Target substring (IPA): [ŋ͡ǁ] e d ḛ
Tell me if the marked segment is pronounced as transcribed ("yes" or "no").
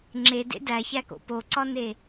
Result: yes